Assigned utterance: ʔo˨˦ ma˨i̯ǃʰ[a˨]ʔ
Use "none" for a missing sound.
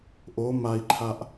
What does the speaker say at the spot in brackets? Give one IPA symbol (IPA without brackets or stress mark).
a˨